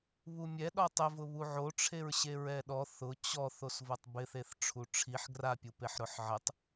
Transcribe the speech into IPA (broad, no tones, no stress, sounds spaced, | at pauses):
β u mʲ ɛ ɗ ɔ tˤ ɪ v ʊ β u ʕ o ʈ͡ʂʰ e ɹ ɕ e ɹ ɛ ɗ ɔ θ ʊ t͡ɕ ɔ θ o s v o tˤ b ɪ θ e θ ʈ͡ʂʰ u ʈ͡ʂʰ i ħ ɡ r a pʲ u p e ħ ɾ ʊ ħ ʕ ɪ tˤ